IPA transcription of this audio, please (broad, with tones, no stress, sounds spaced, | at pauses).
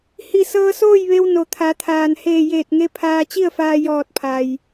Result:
h i˧˩ s ɤː˧ s oː˥˨ j ʋ e˧ w n o˩ t̪ʰ a˩˧ t̪ʰ aː˩ n h eː˧˩ j eː˧˩ t̚ ŋ e˧ pʰ aː˧ t͡ɕ i˥˨ ə̯ f aː˧ j ɔː˧˩ t̚ pʰ a˩ j